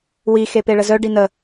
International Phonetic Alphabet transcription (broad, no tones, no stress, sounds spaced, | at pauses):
w i x e p e ɭ ə z œ ɖ i n ə